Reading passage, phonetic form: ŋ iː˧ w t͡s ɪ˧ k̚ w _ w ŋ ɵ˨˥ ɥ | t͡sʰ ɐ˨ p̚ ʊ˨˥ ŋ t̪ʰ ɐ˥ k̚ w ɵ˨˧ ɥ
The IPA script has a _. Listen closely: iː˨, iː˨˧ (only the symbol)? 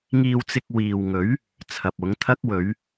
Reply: iː˨